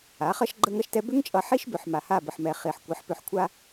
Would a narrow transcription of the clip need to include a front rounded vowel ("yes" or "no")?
yes